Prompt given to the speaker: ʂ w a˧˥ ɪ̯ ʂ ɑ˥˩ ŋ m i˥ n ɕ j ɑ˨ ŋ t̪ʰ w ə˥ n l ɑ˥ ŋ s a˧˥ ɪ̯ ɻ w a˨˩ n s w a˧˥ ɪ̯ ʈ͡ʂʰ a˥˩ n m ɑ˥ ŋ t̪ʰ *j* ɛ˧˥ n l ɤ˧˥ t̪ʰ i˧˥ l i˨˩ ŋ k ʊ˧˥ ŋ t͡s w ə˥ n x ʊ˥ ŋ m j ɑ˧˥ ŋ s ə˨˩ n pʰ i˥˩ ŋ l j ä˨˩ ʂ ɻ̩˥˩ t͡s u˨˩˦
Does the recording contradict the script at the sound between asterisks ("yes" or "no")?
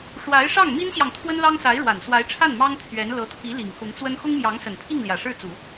yes